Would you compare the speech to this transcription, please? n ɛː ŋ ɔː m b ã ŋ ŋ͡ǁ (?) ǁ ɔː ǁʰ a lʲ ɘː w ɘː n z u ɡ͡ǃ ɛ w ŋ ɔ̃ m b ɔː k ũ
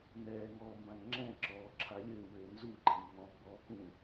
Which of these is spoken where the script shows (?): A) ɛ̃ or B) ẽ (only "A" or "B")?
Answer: A